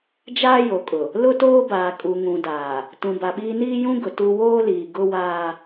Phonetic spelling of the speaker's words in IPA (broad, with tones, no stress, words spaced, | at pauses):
d͡ʒaː˦jo˨kʼʊ˨ | lʊ˦toː˦baː˨ kʼu˨ŋũ˨daː˨ | tũ˨ba˨ɓiː˦ niː˦jũ˦ɡʊ˨ tu˦ woː˦liː˨ ɡʊ˦waː˦